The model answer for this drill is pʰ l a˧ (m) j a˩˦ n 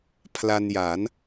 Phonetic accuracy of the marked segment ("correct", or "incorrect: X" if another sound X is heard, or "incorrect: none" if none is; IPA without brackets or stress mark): incorrect: n